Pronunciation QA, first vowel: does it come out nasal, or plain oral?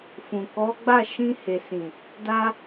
nasal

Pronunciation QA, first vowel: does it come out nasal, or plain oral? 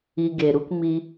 oral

